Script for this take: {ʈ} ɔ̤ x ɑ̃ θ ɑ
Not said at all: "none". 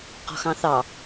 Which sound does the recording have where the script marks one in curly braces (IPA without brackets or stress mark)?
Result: q